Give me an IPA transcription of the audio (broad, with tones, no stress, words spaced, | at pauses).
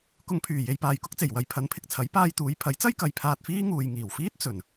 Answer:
kʊ˨ŋpʰyː˨˩ je˧jpaː˨jkʊ˥k̚t͡se˨˩j wɐ˧jpʰɐ˨˥npʰɪ˨k̚t͡sʰɐ˨˥j paː˧jt̪uː˨˧jpʰɐ˨˥jt͡sɐ˥j kɐ˨jpʰaː˧t̚fiː˥ŋuː˨j ŋiː˨˩wfiː˥t̚ t͡sɵ˨˩n